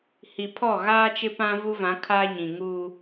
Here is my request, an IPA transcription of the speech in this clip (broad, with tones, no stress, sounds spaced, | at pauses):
h i˨ pʰ ɔ˦˨ ɣ aː˦ t͡ʃ ɪ˦ p ã˦ v u˦ v ã˨˦ kʰ aː˦ ɲ ĩ˨ ŋ uː˦